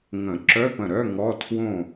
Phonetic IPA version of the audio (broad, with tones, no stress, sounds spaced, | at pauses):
ŋ ə̃˨˩˦ ǁ œ˧˥˧ p ə̃˧˩ ɾ œ˧˥˧ ŋ ɔ˧˥˧ tʰ w õ˥˨